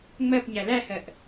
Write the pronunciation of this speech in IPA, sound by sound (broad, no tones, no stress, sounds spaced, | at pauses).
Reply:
ŋ͡m ɜ p ɲ æ l æ h ɜ ʔ